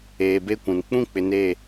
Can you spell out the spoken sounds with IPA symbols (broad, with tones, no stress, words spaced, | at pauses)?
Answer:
eː˨be˦kʷũ˨n k͡pũ˦k͡pɪ˨ ne˦˨